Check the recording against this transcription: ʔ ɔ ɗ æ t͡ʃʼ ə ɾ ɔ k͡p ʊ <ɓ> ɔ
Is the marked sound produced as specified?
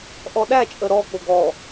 no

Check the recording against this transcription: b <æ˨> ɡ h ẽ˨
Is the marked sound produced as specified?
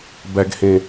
yes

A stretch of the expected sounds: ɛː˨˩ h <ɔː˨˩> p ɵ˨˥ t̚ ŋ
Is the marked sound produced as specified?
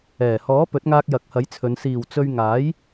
no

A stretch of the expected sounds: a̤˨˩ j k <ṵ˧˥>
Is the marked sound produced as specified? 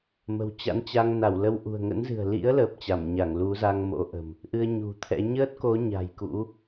yes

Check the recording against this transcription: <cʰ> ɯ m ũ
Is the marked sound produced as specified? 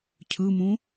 yes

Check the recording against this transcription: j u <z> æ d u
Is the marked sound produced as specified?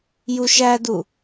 no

